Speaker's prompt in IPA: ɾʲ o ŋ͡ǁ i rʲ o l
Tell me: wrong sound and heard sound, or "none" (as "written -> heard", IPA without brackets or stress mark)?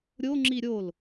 rʲ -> ɾʲ